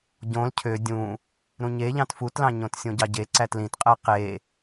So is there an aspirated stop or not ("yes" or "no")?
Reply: yes